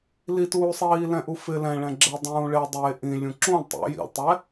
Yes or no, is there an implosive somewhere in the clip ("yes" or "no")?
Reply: no